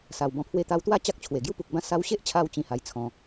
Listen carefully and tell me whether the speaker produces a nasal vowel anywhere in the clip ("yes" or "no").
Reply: yes